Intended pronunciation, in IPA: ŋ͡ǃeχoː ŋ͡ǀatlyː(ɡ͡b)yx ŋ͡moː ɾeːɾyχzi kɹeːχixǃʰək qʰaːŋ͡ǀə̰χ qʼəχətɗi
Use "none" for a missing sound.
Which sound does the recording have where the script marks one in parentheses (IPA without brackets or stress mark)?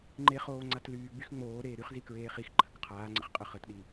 ɡ͡b